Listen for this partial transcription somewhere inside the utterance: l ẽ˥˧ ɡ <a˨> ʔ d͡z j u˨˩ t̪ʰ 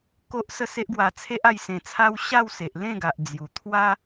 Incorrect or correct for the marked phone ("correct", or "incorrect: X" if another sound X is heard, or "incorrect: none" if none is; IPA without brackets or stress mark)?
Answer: correct